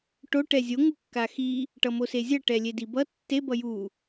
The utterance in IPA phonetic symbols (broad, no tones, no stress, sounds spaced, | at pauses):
ʈ o ʈ ɛ zʲ o ŋ u kː a x i | ʈ ʌ m o s e zʲ ʌ ʈ ɛ lʲ e d i b ʌ tː e b ʌ j u